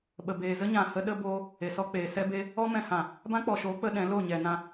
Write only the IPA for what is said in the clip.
ɓ ə˨ b eː˨ z ə˦ ɲ ã˨ h ə˨˦ ɗ ə˧ b oː˧ | e˨ s ɔ˦ k͡p eː˨ s ɛ˧ b e˧ | ɔ˦ m ɛ̃˧ h ã˨ | b ã˦ k͡p ɔ˨ ʃ oː˨˦ k͡p ə˧ ɗ ɛ̃˨˦ l o˦˨ ɲ ɛ˨ n ã˧

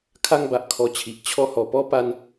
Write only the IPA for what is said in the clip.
kʰ a˦ ŋ b a˨ ʔ kʰ ɔ˧ t͡ɕʰ i˨ ʔ t͡ɕʰ ɔ˧ h ɔ˨˩ p ɔ˦ p a˧ n

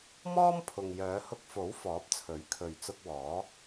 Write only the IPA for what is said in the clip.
m ɔː˥ m pʰ ʊ˨ ŋ j œː˨˧ h ʊ˧ k̚ f o˨˥ w f ɔː˨˥ p̚ t͡sʰ ɵ˨˥ ɥ kʰ ɵ˨ ɥ t͡s ʊ˧ k̚ w ɔː˨˥

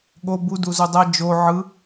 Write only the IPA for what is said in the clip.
ɠ o b u d u z u dˤ ɛ d͡ʒ o ʕ ɯ

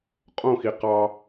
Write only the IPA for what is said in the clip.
qʼ õ x i q ɑ

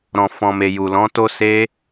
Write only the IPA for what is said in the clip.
ɾ ɔ̃˨ f ɔ̃˨ m e˨ j u˨ l ɔ̃˨˦ t o˦ s e˧

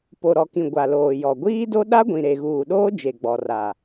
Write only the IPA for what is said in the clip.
p o˨ ɾ ɔ˨ k ĩ˨ ɡʷ a˨ l oː˨ j ɔ˨ ɡʷ iː˦ d o˦ ɗ a˦ ɡʷ ĩ˨ ɾ e˨ ɣ uː˨ ɗ oː˦ d͡ʒ e˨ ɡ͡b ɔ˨ r a˨

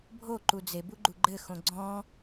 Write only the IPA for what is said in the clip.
bʱ o ǃ u d͡z e b u ɡ͡ǃ u ɡ͡ǃ ɘ x õ ɡ͡ǀ ɔ̃

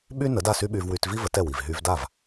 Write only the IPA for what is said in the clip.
ɓ y˥ n ə˩˥ d a˥˩ s y˥ ɓ y˧ v w y˧ t v i˥ v ə˩˥ t ɛ˥˩ w i˩ v ɦ y˧ v d a˥˩ v

